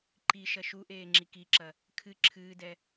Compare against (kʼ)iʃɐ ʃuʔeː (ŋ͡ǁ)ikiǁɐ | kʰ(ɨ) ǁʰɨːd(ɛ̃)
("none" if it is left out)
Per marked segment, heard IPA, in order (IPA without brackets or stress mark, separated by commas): ǃ, ŋ͡ǁ, ɨ, ɛ